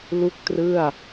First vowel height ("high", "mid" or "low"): high